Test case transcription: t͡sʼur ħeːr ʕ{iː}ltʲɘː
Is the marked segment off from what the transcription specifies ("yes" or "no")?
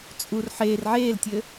yes